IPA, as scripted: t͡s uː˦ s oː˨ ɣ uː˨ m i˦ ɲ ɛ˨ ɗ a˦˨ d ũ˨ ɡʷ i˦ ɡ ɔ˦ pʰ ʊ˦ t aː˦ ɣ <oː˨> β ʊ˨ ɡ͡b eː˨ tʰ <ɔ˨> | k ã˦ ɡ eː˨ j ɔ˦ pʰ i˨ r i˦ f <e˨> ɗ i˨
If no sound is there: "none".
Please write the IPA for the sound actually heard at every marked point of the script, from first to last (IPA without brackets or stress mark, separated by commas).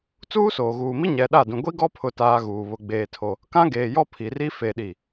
uː˨, o˨, e˨